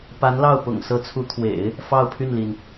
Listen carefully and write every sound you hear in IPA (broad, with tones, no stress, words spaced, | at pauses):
pa˧˥nlɑ˥˩ʊ̯ pʊ̰˨˩ŋsɤ˧˥t͡sʰu˧˥t̪ʰwḛ˨˩˦ɪ̯ | fɑ˥˧ʊ̯pʰy˥˩nli˩n